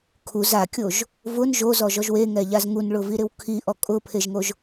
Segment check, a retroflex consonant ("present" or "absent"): present